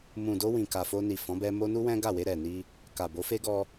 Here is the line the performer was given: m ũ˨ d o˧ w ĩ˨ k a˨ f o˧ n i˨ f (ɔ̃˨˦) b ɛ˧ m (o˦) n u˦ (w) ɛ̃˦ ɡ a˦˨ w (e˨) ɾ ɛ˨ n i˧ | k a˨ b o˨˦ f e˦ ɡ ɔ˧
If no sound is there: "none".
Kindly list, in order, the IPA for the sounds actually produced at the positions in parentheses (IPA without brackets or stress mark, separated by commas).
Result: ɔ̃˨˦, o˦, w, e˧